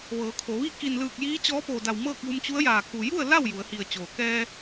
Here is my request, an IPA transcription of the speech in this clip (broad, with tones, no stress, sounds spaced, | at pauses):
ʋ ɤː˩˧ kʰ o˩˧ ʋ i˥˨ k i˧˩ n l ɯː˧˩ k̚ j iː˧˥ t͡ɕ ɔː˧˥ p oː˧˩ d a˧˩ w m ɤː˥˨ k̚ j u˧ m t͡ɕ u˧˥ ə̯ j aː˧˩ k u˩ j u˥˨ ə̯ l a˥˨ w j u˩˧ ə̯ h i˧˩ ə̯ t͡ɕ oː˩ k ɛː˧